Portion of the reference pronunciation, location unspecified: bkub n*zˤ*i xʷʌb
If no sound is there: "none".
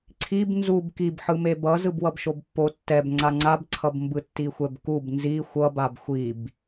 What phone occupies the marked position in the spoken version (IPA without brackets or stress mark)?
z